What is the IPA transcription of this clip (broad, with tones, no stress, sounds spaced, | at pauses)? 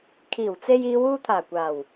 kʰ iː˨˩ w t͡s e˧ j iː˨˧ w uː˧ t̪ʰ aː˨˩ kʷ aː˨˩ w